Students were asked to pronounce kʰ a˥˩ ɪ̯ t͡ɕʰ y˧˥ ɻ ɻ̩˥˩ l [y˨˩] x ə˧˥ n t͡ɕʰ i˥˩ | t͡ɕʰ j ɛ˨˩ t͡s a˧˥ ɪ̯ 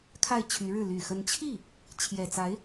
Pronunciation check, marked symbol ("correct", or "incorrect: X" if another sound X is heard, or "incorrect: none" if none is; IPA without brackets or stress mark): correct